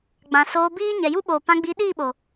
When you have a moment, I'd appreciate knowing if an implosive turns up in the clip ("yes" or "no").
yes